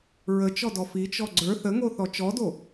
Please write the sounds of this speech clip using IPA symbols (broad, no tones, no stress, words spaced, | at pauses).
ɹət͡ʃɔdɔ fit͡ʃɔ ɡ͡ǀə˞ θəŋoθɔ t͡ʃɔdo